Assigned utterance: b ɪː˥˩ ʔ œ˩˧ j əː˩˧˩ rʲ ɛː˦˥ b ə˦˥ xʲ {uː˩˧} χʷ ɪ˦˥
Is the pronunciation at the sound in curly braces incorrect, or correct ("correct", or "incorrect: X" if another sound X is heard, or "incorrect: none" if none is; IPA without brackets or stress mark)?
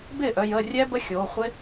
incorrect: oː˩˧